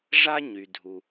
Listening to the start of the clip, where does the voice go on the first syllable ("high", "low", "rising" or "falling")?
high